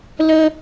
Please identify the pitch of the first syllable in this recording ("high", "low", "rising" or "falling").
high